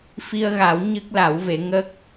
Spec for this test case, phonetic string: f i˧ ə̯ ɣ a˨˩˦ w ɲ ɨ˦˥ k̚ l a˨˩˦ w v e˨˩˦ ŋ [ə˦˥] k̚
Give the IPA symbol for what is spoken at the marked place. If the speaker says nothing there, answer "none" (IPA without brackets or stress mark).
ə˦˥